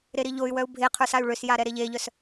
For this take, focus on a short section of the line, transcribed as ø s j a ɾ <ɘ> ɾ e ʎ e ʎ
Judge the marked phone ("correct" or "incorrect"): incorrect